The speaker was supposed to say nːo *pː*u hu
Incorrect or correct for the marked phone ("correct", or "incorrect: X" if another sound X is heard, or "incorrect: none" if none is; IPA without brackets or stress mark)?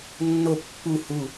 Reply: correct